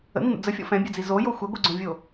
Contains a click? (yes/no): yes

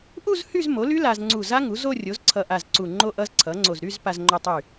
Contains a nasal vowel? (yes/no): no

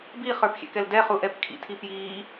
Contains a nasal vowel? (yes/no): no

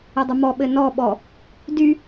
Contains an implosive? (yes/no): yes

